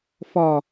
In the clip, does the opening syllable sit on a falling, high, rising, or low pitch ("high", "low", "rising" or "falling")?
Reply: low